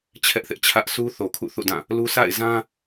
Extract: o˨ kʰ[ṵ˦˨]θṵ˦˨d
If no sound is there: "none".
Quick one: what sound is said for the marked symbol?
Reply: ṵ˦˨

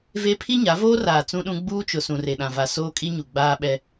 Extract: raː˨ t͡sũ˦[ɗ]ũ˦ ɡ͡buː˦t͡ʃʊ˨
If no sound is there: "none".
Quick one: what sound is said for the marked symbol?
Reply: ɗ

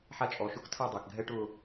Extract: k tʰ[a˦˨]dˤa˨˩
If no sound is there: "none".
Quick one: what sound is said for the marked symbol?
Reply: a˦˨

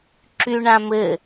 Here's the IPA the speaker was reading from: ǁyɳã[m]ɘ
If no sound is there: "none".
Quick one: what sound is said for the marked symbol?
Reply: m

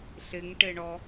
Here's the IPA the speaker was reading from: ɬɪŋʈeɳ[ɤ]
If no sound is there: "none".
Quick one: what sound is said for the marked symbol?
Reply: ɔ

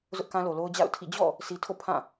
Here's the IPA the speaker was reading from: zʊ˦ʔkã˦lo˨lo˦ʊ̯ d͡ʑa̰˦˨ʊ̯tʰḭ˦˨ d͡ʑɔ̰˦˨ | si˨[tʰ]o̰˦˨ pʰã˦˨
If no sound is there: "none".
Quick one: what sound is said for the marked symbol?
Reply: tʰ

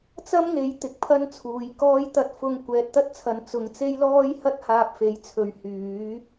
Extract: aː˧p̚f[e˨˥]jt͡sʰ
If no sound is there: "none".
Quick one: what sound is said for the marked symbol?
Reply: e˨˥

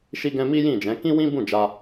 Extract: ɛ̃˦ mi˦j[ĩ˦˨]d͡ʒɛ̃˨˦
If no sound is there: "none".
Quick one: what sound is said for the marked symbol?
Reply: ĩ˦˨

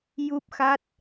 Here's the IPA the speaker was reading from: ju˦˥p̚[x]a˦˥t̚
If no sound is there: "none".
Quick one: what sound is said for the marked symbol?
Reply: x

